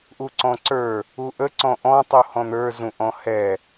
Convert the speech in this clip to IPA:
ʔuǀɔ̃ǀə˞ | uʔəǀɔ̃ ʔɔ̃tˤu hɔ̃n̪ə˞ zũʔɔ̃hɛ

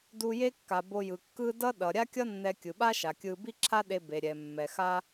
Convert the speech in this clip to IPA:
du˧je˥kːa˩ bo˧jɯ˩kːɯ˥ dʌ˥ ɗʌ˩ɾʲa˥kʲʌ˥ nːɛ˧ kʲɯ˩ɓa˥ʃa˩ kʲɯ˧ bi˥ǁʰa˥ɗe˧be˩ ɾʲɛ˩mːɛ˩xa˥

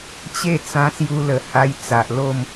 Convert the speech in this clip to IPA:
t͡ɕe˥˧t͡sã˧sju˧lə˨˩ ha˧j t͡sa˨ʔlo˥˧m

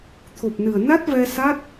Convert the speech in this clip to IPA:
t̪ʰo˨˩p̚nɨ˨˩ə̯na˦˥t̚vɛ˧ sa˦˥t̚

